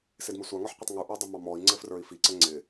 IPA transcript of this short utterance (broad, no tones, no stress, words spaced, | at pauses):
sɪdmɪsʷɑ ŋɔħqʷɪtˤŋu ʔə˞dˤɘmɑmɔi̯ ŋ͡ǀɘfrə˞i̯fi ǀɘŋ͡ǀɪ